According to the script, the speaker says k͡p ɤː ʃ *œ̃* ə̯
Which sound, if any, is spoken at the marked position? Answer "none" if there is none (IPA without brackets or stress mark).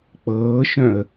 œ̃